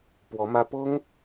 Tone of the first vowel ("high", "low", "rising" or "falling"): rising